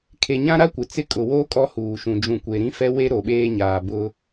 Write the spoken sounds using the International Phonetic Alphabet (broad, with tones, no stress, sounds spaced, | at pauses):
kʰ e˨ ɲ ã˦ ɾ a˦ kʷ ɪ˨ t͡s ɪ˦ kʼ ʊ˨ w o˦ kʼ ɔ˦ h uː˨ ʃ ũ˨ d͡ʒ ũ˨ kʷ e˨ ɾ ĩ˦ f ɛ˦ w e˦ ɾ o˨ ɓ eː˦ ɲ aː˨ b ʊ˦